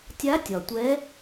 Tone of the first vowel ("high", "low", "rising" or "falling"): rising